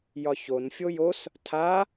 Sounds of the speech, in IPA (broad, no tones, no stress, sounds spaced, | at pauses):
j ɒ ç o n fʲ o j o s | tʰ a